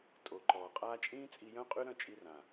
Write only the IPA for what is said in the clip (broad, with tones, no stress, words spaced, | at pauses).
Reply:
tʼo˨ ǃɔː˨qʼaː˦ t͡ʃʼĩː˦t͡sʼi˧jœ̃˦qʼy˦ ɾœ̃˦˨t͡ʃʼi˧ rã˨